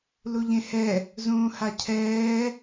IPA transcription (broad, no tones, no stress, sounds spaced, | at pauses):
l u ʎ ẽ h ɛ | z ũː h a cʰ ɛː